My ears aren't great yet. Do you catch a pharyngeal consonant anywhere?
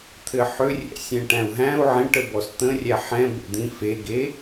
yes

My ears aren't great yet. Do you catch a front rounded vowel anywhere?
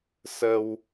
no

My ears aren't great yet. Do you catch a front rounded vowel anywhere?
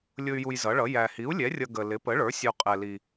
yes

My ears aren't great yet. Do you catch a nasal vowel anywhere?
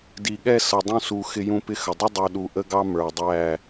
yes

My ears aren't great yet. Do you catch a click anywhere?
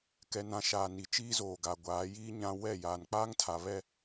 no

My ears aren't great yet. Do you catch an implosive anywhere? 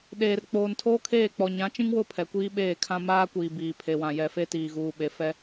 yes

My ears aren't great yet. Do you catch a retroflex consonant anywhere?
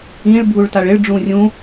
yes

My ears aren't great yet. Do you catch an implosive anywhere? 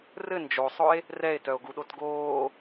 yes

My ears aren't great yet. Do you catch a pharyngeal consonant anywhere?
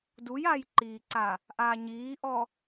no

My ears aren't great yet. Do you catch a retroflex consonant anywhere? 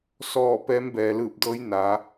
no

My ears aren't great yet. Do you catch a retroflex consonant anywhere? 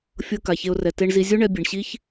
yes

